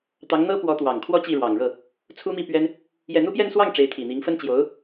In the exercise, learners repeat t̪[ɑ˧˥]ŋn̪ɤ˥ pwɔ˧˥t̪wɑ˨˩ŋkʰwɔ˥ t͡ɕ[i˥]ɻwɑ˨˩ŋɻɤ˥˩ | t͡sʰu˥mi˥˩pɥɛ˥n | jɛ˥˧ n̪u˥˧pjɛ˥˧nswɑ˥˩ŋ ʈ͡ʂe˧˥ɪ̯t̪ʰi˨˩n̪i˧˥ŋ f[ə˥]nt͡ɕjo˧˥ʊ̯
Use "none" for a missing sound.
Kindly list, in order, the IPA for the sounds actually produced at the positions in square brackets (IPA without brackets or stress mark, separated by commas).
ɑ˧˥, i˥˩, ə˥